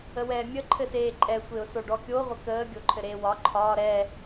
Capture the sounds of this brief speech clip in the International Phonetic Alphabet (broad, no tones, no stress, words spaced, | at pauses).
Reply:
əwɛːmʲə ǃʰɘseːǃʼɛ sʷeʊ̯soɖɔkʲo ʁʷəkəː ɡʲoǃʰɘɾeːwɒ ǃʰɒː ɾɛː